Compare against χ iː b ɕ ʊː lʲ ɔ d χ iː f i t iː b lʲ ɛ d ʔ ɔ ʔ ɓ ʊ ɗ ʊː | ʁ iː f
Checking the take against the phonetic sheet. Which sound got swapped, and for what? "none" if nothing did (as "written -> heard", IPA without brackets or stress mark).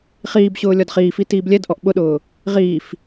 none